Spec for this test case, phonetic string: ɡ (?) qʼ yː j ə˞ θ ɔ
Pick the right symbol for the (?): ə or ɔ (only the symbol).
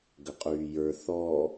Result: ə